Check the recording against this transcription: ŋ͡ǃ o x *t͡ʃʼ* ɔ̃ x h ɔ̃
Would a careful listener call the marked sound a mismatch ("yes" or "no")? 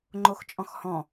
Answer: no